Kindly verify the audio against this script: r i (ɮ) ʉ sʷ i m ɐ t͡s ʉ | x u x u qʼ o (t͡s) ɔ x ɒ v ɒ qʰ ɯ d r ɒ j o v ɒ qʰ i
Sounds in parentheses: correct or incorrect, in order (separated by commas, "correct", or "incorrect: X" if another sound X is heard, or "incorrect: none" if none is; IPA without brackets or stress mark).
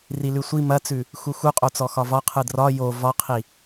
incorrect: l, correct